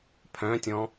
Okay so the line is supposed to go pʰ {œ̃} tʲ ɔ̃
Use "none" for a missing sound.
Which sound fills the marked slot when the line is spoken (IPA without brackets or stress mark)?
œ̃